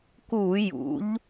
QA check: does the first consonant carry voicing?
no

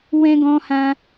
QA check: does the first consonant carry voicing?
yes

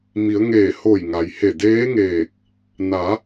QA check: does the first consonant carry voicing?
yes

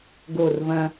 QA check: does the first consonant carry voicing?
yes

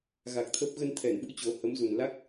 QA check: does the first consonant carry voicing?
yes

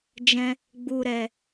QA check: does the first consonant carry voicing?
yes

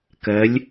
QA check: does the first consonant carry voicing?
no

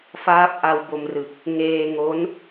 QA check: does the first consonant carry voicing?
no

